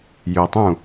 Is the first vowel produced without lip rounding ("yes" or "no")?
no